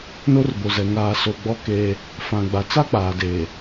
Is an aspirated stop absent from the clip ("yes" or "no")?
yes